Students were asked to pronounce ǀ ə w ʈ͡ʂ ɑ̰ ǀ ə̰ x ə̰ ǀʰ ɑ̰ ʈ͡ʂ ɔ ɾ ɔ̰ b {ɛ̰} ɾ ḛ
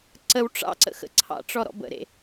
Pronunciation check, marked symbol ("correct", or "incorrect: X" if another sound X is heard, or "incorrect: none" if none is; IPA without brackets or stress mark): incorrect: ə̰